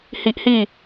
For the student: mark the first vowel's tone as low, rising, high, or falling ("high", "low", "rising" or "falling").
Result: high